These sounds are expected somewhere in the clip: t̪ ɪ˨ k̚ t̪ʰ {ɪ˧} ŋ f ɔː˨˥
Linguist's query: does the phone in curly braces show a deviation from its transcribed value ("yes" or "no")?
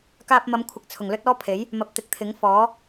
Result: yes